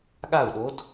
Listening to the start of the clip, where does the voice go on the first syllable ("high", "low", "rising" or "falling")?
falling